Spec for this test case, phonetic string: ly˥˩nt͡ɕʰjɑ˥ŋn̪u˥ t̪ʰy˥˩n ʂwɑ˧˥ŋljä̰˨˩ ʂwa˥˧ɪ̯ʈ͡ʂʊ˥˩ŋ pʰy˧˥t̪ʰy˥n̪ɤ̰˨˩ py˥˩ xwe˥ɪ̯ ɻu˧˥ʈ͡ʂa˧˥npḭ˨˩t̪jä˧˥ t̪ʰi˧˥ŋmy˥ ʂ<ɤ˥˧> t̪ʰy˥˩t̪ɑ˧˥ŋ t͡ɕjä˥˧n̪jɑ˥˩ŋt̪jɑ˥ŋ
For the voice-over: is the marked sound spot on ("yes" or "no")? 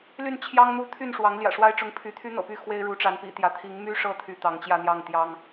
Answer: yes